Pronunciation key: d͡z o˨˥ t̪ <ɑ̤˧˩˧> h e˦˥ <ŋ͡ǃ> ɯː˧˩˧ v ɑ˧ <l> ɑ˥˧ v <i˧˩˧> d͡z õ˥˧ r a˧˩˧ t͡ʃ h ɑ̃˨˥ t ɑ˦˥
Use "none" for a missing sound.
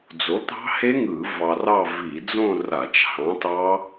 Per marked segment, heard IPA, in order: ɑ̤˦˥, ŋ, r, i˧˩˧

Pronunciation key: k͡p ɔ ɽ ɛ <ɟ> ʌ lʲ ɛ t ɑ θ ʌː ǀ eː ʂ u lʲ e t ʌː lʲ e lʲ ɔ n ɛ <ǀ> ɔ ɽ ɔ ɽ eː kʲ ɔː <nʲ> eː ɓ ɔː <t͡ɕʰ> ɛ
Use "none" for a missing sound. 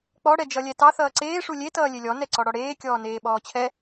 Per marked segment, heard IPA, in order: d͡ʒ, ǀ, n, t͡ɕʰ

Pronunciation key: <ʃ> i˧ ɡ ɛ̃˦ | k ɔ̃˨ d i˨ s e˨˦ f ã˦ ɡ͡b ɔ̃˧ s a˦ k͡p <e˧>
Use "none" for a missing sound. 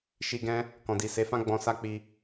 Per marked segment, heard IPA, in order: ʃ, i˧

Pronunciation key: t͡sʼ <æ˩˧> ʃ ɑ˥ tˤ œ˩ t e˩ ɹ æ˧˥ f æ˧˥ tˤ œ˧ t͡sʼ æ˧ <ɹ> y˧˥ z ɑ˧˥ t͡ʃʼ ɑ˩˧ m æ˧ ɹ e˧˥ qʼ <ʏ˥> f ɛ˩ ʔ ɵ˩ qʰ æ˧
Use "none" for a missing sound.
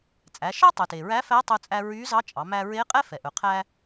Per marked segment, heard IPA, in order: æ˩˧, ɹ, ɛ˥

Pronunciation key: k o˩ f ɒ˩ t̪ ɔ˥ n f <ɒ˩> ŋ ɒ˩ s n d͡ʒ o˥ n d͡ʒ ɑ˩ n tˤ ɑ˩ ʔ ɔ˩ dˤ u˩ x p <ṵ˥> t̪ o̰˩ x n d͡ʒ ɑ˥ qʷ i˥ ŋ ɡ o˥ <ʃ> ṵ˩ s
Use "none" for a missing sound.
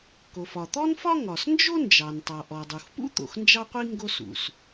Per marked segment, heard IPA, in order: ɒ˥, ṵ˥, s

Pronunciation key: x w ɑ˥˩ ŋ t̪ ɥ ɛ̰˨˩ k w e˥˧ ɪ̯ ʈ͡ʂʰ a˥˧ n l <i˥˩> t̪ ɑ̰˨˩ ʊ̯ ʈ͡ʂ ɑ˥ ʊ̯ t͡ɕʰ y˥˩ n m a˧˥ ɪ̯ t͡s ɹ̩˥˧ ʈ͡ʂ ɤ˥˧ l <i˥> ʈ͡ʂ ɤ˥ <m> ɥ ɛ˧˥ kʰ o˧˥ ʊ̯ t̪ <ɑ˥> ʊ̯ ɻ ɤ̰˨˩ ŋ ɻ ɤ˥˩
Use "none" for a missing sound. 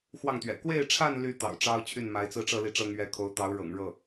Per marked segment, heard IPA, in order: y˥˩, i˥˩, ŋ, ɑ˧˥

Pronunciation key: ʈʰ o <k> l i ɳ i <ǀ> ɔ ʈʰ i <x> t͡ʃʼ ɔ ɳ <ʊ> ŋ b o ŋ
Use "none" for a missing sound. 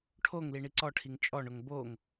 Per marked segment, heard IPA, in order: ŋ, ǀ, ŋ, ʊ

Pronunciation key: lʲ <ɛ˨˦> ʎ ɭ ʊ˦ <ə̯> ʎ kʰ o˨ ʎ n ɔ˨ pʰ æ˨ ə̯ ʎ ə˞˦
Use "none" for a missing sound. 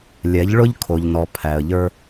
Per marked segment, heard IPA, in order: ɛ˨˦, none

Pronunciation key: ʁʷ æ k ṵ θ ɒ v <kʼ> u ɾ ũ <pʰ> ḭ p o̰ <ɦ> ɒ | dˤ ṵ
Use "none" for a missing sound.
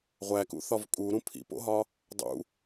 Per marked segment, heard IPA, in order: kʼ, pʰ, ɦ

